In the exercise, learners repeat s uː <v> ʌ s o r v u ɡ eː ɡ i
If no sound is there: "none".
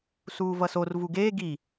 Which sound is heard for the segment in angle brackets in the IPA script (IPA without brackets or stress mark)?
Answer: v